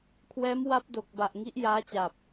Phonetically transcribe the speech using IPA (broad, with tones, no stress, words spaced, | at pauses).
kʰwɛː˦˥m wa˦˥p̚do˨˩k̚ba˨˩ʔ ŋi˦˥ʔjaː˦˥t͡ɕa˨˩p̚